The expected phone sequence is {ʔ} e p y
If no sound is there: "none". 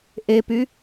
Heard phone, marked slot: ʔ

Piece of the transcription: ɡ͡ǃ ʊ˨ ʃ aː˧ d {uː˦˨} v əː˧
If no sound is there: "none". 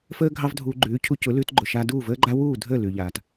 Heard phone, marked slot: uː˦˨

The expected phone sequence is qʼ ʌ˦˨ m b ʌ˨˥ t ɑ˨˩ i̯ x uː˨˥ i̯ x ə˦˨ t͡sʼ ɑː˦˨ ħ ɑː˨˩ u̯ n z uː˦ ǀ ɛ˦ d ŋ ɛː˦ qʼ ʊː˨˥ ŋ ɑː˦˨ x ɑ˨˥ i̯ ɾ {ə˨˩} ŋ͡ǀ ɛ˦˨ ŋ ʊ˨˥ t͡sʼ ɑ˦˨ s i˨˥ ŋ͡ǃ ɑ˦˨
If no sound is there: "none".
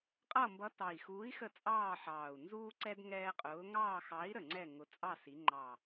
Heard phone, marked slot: ə˨˩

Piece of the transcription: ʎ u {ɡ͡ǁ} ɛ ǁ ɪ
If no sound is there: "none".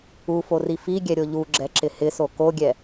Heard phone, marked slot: ɡ͡ǁ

